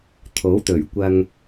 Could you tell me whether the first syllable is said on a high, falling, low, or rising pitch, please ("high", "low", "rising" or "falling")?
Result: rising